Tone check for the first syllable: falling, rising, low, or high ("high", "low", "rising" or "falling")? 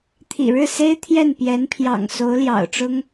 low